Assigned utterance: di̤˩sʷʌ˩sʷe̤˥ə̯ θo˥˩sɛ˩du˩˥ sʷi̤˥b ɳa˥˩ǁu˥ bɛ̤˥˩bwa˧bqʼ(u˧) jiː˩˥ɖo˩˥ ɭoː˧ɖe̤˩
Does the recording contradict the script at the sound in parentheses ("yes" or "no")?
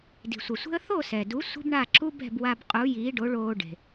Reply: yes